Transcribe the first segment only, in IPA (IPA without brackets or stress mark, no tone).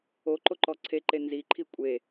o